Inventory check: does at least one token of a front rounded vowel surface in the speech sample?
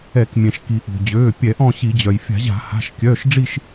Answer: yes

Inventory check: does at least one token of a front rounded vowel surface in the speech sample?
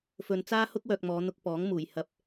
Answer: yes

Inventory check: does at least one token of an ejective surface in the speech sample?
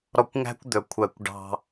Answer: no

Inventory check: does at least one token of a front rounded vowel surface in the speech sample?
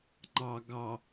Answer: no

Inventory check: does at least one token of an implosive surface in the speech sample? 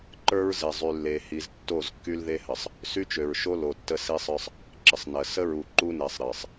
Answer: no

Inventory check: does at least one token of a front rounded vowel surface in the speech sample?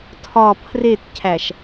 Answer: no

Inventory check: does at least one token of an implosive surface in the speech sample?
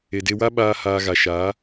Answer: yes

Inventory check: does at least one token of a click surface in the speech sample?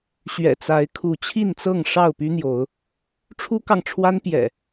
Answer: no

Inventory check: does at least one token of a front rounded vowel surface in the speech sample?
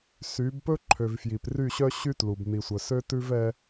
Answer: yes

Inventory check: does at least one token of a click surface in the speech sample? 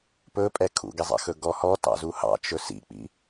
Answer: no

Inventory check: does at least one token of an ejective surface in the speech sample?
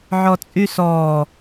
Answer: yes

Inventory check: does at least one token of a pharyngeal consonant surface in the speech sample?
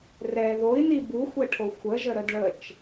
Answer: no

